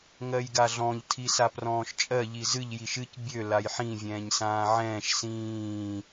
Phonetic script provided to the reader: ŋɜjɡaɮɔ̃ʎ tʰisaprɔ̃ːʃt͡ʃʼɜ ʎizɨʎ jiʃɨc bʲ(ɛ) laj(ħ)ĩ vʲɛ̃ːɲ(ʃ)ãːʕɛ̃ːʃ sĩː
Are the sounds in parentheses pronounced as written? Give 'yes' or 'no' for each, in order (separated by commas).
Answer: no, yes, no